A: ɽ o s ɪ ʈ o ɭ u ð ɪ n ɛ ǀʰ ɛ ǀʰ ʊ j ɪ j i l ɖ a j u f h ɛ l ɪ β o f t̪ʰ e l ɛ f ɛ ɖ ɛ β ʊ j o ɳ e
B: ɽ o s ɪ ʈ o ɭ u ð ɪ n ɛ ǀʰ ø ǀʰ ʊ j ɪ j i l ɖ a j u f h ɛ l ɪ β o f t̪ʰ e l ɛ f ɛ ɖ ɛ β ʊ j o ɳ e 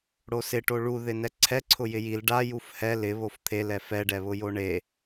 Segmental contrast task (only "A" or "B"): A